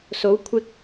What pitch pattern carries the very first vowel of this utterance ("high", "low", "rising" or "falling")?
rising